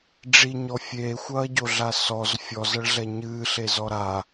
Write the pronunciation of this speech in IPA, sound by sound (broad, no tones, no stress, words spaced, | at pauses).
ɖ͡ʐiɲɔ fʲeːxʷɐːɟoɮa sɔz fʲɔzɐɭɮɛ ɲɨːɬezɔ ɾa